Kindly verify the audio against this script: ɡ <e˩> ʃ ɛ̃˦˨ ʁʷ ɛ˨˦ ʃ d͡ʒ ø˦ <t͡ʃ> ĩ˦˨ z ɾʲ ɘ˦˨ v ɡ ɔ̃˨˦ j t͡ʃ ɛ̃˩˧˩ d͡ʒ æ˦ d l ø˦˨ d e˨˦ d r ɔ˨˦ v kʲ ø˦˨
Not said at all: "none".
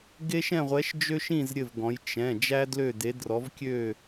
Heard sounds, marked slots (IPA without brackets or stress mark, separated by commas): e˦, ʃ